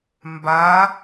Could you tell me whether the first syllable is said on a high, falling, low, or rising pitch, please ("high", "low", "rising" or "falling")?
rising